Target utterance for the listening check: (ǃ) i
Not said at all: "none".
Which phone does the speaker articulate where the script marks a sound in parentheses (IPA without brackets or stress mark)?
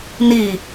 n